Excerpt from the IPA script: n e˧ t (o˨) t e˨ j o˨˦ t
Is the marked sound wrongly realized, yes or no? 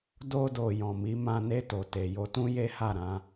no